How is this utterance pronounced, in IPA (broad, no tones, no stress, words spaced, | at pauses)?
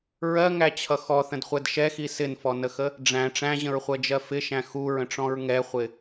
ɹɜŋæt͡ɕʰʌ xɔθə̃dχʷɛd ʃɛxi sɪnfɔnəxə | ɖ͡ʐæ̃ ʈ͡ʂæ̃ʑə̃ɹχʷɜd͡ʒɜ fɪʃæ̃ xuɹə̃ʈ͡ʂɔ̃ɹ ŋɛχʷɪ